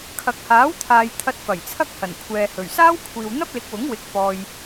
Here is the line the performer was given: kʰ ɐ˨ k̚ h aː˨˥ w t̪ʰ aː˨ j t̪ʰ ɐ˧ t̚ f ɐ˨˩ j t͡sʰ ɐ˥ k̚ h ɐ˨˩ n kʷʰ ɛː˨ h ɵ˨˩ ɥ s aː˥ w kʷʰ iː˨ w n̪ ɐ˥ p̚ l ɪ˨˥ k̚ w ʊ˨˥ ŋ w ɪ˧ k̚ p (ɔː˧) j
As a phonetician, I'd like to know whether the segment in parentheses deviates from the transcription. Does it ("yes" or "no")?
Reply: no